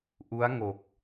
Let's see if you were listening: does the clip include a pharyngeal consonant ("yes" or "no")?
no